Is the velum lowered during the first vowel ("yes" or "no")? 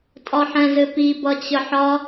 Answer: no